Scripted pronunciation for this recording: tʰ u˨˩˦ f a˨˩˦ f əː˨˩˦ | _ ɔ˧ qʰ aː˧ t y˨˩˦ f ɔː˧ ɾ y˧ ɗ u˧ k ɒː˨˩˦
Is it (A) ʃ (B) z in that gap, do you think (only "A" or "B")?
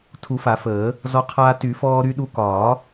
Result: B